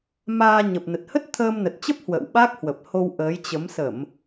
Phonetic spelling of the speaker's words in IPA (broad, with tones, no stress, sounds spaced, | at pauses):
m aː˧ ɲ ə˨˩ p̚ n ə˨˩ t̚ h ə˦˥ t̚ t̪ʰ əː˧ m n ə˨˩ t̚ t͡ɕ ə˦˥ p̚ h w ə̰ː˧˨ w ɓ a˦˥ k̚ h w ə˨˩ p̚ h o˧ w ʔ əː˨˦ j t͡ɕ ə˨˦ m s ə˧˩˨ m